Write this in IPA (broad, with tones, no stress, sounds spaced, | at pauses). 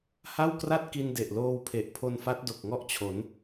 h a˥˩ w k r a˥˩ t̚ k i˧ n d e˨˩ ʔ l oː˧ w pʰ e˨˩ ʔ pʰ o˧ n f a˦˥ t̚ d o˨˩ k̚ ŋ ɔ˥˩ ʔ t͡ɕʰ o˩˦ n